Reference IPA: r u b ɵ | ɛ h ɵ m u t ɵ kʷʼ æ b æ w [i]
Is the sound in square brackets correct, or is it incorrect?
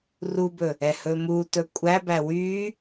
incorrect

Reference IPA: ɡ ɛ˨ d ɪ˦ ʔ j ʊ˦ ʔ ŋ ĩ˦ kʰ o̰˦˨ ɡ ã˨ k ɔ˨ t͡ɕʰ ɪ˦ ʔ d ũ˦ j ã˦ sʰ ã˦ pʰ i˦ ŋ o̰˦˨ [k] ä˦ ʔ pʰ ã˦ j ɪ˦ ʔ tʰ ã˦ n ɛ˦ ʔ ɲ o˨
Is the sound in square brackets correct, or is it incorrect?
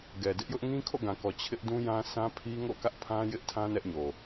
correct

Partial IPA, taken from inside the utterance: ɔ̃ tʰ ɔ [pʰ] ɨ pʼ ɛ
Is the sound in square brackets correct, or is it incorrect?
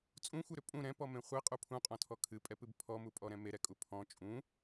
incorrect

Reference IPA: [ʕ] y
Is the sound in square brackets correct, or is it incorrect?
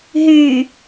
incorrect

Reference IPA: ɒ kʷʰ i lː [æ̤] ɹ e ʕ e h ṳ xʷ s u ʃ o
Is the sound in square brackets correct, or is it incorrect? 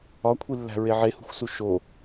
correct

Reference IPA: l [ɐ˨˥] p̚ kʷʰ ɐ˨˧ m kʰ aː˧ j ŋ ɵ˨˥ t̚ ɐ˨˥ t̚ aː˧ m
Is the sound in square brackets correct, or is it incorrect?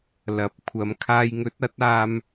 correct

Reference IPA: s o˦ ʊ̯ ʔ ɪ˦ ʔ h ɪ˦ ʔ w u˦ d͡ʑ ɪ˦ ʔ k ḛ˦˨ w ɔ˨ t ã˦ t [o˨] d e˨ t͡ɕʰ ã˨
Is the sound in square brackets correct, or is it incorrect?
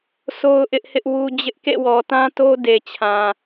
incorrect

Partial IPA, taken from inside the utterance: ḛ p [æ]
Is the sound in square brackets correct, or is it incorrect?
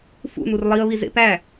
correct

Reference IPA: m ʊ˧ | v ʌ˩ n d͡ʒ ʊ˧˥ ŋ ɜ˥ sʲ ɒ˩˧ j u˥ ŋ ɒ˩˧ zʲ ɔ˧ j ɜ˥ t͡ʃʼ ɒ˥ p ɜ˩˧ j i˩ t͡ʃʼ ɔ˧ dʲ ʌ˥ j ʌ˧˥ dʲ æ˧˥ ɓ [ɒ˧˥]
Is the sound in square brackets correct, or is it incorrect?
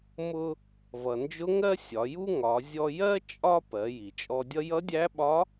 correct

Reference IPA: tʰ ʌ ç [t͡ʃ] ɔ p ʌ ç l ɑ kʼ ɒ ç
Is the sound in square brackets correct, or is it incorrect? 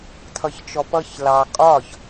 correct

